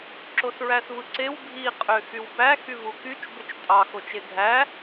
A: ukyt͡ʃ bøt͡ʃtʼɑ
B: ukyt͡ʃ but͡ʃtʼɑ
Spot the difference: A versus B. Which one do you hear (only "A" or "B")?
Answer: A